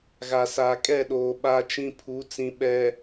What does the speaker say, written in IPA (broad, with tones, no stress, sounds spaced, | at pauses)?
ɣ a˨ s aː˨ kʼ ɛ˦˨ ɗ oː˨ ɓ a˦ t͡ʃ ĩ˦ pʰ u˨˦ t͡s ĩ˨ ɓ ɛ˨